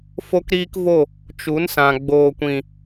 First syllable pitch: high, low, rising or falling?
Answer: high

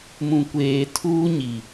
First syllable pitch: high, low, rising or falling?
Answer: low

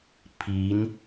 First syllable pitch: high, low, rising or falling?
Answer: rising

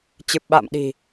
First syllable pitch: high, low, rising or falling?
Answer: low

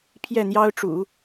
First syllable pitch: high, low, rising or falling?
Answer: falling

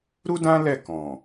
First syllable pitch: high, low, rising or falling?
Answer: high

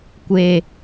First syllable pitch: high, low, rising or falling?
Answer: low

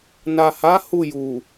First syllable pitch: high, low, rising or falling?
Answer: low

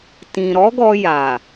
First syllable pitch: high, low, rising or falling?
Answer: low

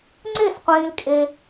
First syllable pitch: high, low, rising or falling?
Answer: falling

